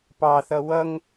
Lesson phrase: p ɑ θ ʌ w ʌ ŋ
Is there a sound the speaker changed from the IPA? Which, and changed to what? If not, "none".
none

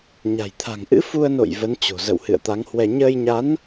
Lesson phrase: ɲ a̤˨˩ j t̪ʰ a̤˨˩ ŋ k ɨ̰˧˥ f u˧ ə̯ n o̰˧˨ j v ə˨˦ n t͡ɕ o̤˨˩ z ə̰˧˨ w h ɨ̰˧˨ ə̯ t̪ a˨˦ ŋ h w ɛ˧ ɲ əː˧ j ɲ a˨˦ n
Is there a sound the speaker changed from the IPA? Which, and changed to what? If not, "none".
k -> ʔ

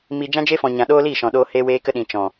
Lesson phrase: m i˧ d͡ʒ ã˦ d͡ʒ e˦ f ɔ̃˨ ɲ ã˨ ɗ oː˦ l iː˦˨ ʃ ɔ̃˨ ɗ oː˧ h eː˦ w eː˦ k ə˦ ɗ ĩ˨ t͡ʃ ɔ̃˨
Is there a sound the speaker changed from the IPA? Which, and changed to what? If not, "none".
none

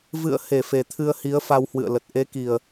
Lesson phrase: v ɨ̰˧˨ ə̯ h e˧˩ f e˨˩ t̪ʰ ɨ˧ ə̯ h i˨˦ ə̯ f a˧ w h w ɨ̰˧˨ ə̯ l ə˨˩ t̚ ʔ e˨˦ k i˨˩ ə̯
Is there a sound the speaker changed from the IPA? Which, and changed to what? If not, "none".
none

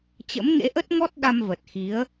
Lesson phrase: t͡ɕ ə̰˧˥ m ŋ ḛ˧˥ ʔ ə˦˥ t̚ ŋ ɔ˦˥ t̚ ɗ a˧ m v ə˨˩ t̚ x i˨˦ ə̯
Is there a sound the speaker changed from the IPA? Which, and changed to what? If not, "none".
none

